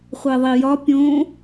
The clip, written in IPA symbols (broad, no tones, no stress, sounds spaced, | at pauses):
χʷ e ðˤ i j ɒ pʲ õ